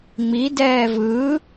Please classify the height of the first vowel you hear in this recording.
high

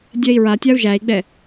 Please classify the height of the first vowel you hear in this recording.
mid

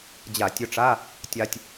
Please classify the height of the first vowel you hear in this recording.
low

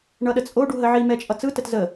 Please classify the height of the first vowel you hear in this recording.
mid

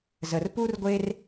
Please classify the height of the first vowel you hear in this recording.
mid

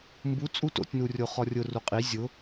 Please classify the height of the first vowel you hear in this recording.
high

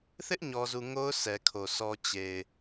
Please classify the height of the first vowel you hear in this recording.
high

